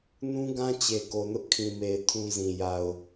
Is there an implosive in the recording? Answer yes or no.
no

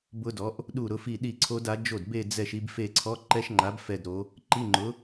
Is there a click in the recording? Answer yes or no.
yes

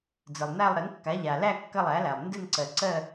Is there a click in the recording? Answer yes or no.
yes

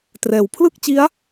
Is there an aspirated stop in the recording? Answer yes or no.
yes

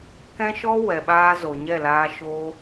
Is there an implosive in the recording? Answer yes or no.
yes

